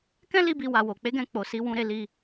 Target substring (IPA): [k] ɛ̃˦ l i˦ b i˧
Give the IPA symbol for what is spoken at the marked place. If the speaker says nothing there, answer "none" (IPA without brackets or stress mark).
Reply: k